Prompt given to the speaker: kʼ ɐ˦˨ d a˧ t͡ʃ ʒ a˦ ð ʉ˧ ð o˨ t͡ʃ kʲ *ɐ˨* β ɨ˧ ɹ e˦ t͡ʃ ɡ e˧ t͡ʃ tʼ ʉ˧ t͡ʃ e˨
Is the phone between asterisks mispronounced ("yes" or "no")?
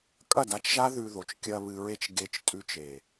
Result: yes